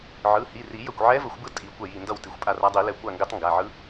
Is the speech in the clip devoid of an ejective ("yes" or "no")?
no